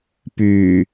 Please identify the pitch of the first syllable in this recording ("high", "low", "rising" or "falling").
low